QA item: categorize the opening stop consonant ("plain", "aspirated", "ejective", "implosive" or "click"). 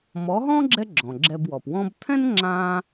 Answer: click